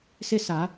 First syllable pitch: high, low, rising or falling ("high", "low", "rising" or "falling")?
high